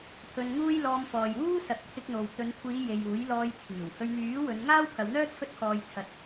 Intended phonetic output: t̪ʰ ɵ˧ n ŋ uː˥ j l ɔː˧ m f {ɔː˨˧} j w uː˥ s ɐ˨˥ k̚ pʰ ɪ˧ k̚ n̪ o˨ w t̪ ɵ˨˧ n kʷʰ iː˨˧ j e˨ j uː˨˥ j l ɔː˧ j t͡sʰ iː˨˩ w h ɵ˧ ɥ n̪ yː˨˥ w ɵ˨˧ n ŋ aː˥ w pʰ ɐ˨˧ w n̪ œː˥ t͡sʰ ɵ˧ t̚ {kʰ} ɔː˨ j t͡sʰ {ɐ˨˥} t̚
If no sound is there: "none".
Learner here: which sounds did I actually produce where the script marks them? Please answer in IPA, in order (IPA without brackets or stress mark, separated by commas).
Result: ɔː˨, kʰ, ɐ˨